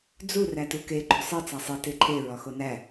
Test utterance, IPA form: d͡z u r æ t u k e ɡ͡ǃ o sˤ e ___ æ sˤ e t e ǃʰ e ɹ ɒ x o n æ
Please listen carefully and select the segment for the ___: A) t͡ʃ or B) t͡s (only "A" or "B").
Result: B